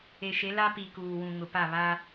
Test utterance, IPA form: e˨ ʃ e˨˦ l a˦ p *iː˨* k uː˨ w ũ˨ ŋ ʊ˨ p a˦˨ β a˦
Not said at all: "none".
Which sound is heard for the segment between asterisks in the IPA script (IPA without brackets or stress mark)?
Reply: i˨